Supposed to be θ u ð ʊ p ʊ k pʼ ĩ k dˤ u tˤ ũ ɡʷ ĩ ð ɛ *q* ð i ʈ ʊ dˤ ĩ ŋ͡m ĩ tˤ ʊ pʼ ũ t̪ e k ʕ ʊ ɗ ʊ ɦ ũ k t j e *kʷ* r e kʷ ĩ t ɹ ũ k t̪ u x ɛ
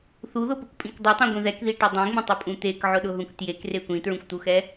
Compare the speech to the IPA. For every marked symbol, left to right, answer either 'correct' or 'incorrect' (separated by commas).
incorrect, incorrect